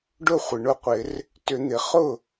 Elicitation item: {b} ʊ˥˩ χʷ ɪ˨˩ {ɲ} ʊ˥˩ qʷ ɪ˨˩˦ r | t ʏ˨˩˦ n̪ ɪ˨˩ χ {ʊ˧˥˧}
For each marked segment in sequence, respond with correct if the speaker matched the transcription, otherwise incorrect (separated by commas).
incorrect, incorrect, incorrect